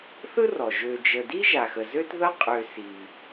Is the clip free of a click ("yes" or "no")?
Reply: yes